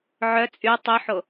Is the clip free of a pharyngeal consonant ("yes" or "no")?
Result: no